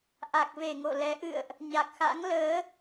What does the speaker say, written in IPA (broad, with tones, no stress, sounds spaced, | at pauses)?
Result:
ʔ a˨˩ k̚ v e˧˩ ŋ o̰˧˨ l ɛ˨˦ ʔ ɨ̰˧˨ ə̯ ʔ | ɲ a˨˩ k̚ x a̰˧˥ ŋ l əː˨˦